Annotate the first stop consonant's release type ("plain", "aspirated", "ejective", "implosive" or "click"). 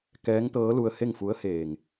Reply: plain